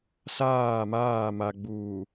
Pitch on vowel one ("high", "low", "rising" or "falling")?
falling